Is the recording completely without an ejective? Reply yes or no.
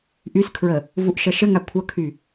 yes